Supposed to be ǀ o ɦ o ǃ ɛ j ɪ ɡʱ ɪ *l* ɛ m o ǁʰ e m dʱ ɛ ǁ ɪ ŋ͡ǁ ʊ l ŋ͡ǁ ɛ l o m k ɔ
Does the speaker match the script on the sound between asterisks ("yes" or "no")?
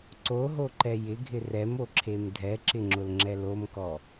no